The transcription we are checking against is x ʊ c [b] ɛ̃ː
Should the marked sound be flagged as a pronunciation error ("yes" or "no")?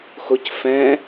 yes